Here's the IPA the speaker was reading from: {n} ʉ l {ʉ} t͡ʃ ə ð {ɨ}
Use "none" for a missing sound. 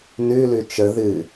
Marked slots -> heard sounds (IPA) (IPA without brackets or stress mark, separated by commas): n, ʉ, ɨ